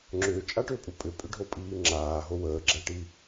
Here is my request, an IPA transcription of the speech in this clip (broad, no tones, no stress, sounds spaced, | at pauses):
ŋ͡ǁ ʏː t͡ʃʼ a ʈ ʏː pʼ u pʼ ʏ pʼ ʏ ɖʱ o pʼ iː ŋ͡ǁ aː ɦ o w əː ɡ͡ǁ æ ʈ i